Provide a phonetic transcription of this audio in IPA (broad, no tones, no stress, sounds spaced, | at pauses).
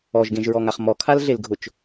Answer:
ɔ ʒ ɡ ẽ ʒ ɹ ɔ ŋ a χ m ɔ kʰ a l ɮ e l ɡʱ ʊ t͡ʃ